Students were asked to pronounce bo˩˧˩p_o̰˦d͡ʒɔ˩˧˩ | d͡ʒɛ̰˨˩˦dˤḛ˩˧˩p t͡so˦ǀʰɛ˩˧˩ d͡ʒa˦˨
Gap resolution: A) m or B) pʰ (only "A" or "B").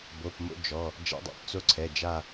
A